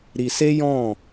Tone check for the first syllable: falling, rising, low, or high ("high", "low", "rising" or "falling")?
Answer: low